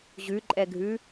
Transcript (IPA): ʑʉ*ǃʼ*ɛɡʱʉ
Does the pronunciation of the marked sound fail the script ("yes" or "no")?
no